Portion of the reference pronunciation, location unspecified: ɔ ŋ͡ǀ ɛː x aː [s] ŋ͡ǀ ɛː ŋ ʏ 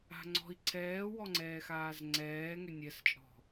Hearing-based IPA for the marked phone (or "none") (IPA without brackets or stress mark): z